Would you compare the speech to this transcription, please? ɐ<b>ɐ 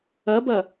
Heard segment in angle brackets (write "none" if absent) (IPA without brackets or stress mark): b